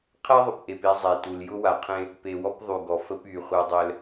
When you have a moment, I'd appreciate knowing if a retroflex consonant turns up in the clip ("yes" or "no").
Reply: no